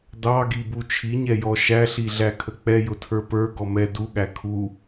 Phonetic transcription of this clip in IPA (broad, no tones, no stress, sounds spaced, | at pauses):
d ɑ ɡ i b u t͡ʃʰ i ɲ ɛ j ɔ ʃ æ ɬ i ɮ æ kʰ ə k͡p ɛ j ʊ tʰ ə˞ p ə˞ ɡ ɔ m ɛ d u ɠ æ kʰ u